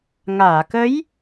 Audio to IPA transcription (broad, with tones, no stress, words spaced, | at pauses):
ŋaː˨˩˨kə˧˥j